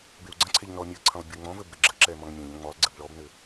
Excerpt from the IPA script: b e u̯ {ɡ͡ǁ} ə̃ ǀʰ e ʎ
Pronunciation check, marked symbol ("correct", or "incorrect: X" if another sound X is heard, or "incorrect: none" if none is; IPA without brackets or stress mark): incorrect: ɡ͡ǀ